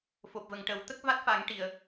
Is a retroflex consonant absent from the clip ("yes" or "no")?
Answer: no